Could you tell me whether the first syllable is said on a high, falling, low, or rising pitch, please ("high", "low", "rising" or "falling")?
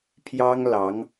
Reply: high